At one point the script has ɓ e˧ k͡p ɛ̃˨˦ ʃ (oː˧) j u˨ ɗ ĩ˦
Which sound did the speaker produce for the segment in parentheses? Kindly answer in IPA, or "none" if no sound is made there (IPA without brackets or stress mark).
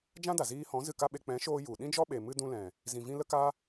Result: oː˧